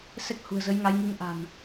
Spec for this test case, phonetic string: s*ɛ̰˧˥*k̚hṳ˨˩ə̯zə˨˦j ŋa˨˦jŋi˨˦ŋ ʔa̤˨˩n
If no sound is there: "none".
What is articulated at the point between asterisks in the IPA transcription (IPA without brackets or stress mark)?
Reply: ɛ˦˥